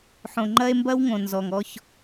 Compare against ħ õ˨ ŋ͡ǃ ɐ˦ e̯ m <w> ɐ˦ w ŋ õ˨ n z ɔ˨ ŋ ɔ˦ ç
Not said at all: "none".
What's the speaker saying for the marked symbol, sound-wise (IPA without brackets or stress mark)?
b